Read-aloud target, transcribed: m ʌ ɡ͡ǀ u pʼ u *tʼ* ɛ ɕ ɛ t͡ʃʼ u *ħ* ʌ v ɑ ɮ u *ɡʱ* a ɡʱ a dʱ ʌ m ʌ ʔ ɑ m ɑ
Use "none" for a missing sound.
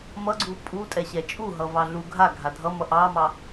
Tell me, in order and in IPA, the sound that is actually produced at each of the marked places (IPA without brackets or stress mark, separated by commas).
tʼ, ɦ, ɡʱ